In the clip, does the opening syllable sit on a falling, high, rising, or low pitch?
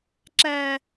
low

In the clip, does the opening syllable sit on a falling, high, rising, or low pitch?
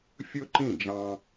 high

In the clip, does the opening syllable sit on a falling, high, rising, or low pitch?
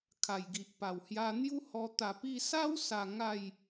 low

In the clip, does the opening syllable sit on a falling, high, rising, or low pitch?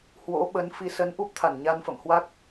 rising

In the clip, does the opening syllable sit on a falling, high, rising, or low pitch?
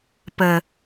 low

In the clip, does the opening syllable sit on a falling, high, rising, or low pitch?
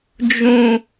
low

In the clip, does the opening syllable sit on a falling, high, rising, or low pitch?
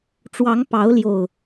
rising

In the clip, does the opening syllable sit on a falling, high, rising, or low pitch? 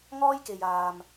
high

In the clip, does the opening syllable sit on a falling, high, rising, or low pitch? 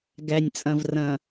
low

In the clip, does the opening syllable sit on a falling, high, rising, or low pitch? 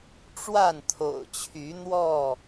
falling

